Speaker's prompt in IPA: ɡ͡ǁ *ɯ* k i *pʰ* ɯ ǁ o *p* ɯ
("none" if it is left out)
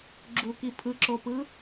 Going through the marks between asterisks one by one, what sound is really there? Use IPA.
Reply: u, pʰ, p

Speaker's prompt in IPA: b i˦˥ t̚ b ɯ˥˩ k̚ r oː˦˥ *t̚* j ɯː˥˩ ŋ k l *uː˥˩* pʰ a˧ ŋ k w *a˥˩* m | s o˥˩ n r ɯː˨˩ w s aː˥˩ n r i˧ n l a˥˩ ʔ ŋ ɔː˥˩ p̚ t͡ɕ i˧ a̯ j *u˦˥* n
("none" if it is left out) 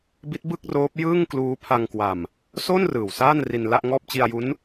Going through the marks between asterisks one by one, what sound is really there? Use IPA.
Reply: p̚, uː˦˥, a˨˩, u˦˥

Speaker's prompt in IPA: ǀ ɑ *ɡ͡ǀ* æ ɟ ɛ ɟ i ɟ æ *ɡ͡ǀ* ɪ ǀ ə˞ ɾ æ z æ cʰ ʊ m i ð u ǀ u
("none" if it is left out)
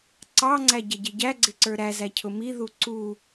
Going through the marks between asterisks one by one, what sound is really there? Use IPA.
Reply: ŋ͡ǀ, ɡ͡ǀ

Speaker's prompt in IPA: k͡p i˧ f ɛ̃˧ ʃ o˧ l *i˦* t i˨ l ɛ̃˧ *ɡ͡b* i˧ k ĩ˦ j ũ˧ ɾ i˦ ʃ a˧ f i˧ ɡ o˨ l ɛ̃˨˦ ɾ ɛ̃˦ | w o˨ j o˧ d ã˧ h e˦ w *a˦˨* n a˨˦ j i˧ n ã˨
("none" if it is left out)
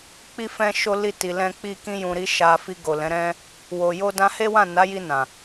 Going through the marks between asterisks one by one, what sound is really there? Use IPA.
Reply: i˧, k͡p, ã˦˨

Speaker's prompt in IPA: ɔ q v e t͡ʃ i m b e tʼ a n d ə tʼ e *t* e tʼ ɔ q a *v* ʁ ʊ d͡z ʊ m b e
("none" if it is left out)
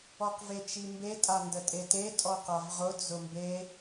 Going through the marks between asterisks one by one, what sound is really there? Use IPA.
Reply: t, v

